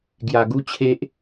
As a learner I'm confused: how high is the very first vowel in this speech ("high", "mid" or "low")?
low